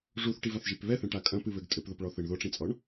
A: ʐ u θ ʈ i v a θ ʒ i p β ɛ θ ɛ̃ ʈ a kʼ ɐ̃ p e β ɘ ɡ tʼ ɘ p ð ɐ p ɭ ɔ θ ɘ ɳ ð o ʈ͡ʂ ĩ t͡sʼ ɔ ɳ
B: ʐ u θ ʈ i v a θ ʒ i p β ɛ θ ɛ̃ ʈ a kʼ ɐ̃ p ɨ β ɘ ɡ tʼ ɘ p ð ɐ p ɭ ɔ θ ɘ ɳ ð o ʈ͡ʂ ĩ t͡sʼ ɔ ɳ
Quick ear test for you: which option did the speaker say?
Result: B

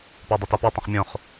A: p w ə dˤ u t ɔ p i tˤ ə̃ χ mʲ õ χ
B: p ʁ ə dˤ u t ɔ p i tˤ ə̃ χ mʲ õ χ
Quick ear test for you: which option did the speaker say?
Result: A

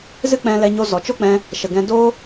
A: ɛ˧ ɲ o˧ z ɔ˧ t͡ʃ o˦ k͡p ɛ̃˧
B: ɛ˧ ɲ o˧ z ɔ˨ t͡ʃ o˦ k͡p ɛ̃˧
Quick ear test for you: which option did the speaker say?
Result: B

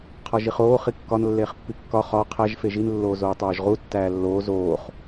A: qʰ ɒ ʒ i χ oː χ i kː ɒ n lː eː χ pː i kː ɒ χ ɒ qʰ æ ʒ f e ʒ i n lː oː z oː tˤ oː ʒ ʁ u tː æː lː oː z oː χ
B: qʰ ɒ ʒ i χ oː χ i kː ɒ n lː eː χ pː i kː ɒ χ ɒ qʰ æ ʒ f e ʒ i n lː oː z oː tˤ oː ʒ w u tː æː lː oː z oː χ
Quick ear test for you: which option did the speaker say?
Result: A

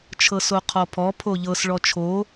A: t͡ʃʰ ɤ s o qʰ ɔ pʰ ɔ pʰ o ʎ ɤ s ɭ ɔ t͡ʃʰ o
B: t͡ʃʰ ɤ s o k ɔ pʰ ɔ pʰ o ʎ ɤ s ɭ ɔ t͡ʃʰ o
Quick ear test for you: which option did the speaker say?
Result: A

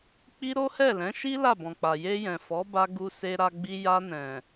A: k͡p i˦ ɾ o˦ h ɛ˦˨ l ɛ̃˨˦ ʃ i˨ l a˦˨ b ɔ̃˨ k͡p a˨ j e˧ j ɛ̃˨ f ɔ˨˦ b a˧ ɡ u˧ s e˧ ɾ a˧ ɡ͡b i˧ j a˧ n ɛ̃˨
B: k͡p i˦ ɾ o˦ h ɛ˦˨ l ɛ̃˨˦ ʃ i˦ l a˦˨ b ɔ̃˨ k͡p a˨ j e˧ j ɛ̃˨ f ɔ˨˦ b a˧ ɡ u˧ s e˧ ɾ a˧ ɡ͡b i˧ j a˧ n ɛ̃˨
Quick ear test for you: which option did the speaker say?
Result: B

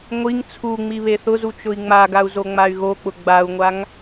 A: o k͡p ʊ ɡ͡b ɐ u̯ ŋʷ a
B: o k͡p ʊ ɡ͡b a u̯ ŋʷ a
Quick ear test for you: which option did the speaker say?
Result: B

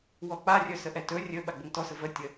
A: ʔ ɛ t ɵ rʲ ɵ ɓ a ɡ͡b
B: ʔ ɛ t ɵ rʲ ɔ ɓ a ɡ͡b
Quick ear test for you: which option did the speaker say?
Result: A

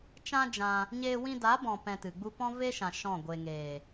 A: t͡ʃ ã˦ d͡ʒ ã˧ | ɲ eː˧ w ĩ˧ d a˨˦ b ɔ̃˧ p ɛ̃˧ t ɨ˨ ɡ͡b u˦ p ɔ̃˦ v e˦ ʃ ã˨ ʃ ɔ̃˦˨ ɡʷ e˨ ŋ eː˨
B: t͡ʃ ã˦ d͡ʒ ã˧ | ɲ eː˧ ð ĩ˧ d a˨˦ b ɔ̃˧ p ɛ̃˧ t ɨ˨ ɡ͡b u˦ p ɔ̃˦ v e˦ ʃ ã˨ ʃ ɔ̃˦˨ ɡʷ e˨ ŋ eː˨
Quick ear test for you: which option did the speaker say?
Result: A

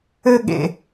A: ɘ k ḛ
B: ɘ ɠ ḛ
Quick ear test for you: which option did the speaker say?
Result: B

